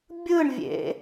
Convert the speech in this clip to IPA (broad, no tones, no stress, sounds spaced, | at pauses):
bʲ ɯ ɳ vʲ ḛ